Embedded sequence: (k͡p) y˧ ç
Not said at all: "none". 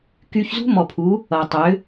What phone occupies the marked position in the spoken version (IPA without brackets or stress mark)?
k